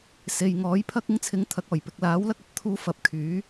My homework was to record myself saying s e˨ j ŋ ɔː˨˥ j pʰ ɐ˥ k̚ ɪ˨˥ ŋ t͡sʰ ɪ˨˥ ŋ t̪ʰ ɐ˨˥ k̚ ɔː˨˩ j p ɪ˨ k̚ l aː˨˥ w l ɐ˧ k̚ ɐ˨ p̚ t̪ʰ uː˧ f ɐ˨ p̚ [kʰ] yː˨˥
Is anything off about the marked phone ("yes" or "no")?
no